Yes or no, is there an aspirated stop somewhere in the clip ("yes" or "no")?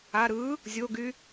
no